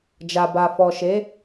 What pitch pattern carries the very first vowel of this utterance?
low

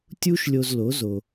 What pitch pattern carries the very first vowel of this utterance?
high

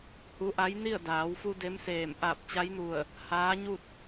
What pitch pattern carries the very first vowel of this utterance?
rising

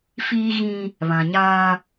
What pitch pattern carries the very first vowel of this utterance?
high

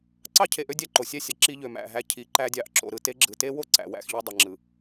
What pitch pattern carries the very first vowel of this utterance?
high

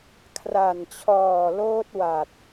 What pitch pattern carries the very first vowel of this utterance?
low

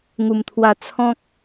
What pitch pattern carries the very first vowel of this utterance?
low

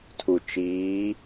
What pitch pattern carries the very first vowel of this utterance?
low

